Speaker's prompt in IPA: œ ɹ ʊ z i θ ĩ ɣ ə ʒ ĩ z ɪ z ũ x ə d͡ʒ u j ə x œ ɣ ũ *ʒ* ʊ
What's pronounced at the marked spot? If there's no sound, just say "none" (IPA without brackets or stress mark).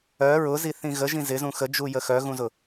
z